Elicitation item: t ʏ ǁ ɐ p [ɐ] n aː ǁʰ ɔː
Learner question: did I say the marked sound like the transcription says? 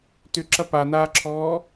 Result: no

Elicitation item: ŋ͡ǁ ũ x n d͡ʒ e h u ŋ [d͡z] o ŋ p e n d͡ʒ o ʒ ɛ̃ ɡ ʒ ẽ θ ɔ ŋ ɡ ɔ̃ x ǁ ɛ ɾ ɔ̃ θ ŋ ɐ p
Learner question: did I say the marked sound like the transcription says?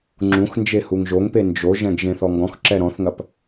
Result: no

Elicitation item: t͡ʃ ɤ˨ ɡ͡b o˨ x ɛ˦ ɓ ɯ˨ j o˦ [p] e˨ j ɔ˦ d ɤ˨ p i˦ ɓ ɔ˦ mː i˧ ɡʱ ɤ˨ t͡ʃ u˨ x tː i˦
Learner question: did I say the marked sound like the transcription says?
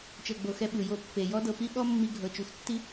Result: no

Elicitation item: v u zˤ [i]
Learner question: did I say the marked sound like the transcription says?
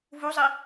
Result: yes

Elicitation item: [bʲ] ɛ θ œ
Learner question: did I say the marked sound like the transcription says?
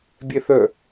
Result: yes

